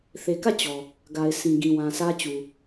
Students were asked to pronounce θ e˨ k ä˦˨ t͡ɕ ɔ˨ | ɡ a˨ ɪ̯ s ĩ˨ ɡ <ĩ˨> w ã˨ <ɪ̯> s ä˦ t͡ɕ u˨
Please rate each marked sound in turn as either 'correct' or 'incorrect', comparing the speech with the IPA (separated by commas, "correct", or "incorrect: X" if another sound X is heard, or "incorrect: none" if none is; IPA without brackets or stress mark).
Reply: correct, incorrect: none